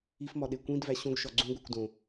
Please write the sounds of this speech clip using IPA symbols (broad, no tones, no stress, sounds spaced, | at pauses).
i f m ɒ ɗ e kʷ ĩ d v æ ɕ õ ɡ ʃ ɒ ɡ͡ǀ ũ ɡʷ e kʷ d õ